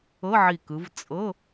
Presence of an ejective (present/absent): present